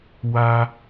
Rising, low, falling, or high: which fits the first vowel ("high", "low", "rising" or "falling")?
high